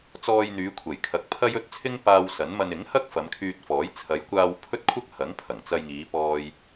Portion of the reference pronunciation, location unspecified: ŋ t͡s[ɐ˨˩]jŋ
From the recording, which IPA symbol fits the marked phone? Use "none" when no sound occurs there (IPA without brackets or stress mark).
ɐ˧